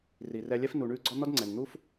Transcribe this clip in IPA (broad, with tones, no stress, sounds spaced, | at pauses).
r i˨ r ɛ˧ lʲ ɛ˦ f n u˨ ɳ ʉ˧ ɡ͡ǀ ɔ˦ n̪ ɔ˦ d ŋ͡ǀ ɛ˨ n n̪ u˦ f